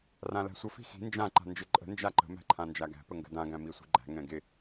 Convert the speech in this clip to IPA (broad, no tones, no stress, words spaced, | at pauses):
rãlæ̤sʷə fi̤xi̤ nd͡ʒã ǃa̤nd͡ʒɪǃʼə̤ nd͡ʒaǃə̤ mæ̤ǃʰãnd͡ʒaɡæ̤ pəŋɡə̤dã ɡæ̃misʷi̤ɡ͡ǃæ̤ ŋɛ̃ɡɪ